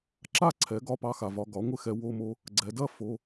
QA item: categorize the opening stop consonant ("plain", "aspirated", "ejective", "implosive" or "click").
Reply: click